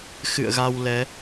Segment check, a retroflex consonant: absent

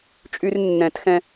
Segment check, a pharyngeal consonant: absent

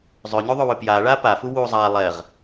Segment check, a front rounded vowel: present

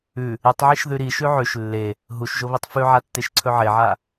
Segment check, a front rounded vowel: absent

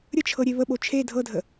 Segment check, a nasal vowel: absent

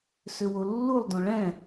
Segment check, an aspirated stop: absent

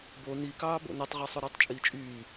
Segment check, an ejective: present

